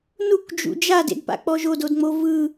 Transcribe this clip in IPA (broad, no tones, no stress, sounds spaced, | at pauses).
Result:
n u k d͡ʒ ṵ d͡ʒ a d ḛ d p a̰ k͡p ɔ ʒ o d o d ŋ͡m o v ɯ